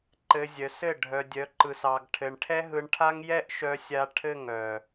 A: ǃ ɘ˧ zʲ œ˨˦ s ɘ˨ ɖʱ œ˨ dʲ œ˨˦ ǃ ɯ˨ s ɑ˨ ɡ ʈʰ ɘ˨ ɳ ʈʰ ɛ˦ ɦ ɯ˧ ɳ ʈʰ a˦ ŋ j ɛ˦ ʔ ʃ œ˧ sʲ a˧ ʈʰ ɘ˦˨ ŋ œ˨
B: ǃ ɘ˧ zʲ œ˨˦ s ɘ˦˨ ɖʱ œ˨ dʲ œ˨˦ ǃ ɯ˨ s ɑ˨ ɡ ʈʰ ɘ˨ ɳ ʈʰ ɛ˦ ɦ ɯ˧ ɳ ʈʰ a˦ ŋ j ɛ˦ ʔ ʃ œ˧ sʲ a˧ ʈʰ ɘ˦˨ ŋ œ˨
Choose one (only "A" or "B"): B